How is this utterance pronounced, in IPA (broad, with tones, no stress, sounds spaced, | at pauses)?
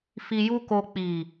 f i˧ j u˦ k o˧ k͡p i˨